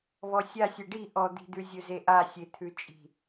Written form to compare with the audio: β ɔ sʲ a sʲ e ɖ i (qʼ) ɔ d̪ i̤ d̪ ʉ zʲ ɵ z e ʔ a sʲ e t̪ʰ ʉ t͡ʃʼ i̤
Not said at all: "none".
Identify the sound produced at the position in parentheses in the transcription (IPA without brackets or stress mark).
ʔ